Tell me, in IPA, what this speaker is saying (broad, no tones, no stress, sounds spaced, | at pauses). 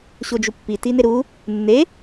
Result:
ɕ o d͡ʒ u pː i t i n e ɾ u | nː e